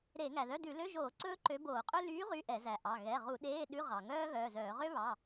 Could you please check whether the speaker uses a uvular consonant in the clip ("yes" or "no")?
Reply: yes